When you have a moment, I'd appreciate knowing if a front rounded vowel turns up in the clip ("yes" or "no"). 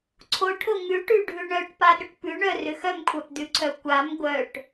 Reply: yes